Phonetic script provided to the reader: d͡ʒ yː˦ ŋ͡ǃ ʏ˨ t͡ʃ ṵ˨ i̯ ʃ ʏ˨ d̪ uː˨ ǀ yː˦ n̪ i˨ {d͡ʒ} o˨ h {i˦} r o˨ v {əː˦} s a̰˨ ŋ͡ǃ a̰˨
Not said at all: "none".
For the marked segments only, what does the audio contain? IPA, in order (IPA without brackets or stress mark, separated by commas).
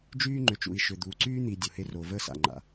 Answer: dʲ, e˦, əː˦